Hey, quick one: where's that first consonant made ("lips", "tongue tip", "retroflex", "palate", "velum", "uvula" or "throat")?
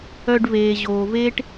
retroflex